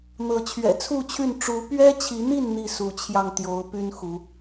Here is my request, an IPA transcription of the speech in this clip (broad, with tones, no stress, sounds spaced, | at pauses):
n̪ ɤ˨˦ t͡ɕʰ ɥ ɛ̰˨˩ t͡sʰ u˥˨ t͡ɕʰ y˥˨ n ʈ͡ʂ u˨˦ p ɥ ɛ˦ t͡ɕʰ i˨˦ n̪ i˥˨ n n̪ i˥˨ s u˨˦ t͡ɕʰ j ɑ˧ ŋ t̪ j o˨˦ ʊ̯ p y˦ n x u˨˦